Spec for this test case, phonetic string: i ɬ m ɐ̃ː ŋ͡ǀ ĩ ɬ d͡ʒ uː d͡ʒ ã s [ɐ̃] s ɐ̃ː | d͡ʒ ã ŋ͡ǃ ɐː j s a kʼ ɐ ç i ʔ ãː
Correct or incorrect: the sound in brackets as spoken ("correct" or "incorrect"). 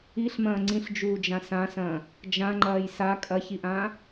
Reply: incorrect